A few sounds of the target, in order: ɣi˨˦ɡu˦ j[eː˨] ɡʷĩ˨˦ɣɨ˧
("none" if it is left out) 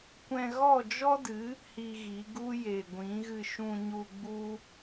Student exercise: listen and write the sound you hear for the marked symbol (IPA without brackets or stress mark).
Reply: e˨